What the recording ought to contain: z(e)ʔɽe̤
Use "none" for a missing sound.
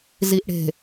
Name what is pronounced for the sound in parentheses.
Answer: i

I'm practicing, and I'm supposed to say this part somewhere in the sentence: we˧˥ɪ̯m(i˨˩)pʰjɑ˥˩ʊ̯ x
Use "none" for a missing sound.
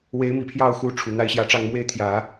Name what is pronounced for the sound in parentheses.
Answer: i˨˩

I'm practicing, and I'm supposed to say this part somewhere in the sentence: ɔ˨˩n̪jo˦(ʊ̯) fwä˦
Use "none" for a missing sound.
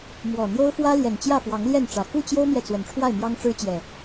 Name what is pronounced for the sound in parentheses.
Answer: ʊ̯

